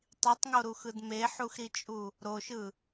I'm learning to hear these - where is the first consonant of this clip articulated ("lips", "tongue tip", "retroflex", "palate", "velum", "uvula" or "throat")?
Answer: tongue tip